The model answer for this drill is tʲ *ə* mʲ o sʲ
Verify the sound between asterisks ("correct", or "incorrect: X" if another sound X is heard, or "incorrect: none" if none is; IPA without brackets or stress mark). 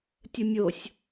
correct